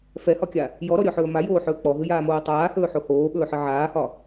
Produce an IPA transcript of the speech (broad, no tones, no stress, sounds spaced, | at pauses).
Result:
f ɛ h ɒ kʲ a | j ɔ ɾ ɔ ɾʲ ɔ ħ ɵː m a j oː ħ ɵː k͡p ɔ ɦ ɨ j aː m oː tˤ aː h ɵː ħ o h oː ɓ ɵː ħ ɨ ʕ aː h ɒ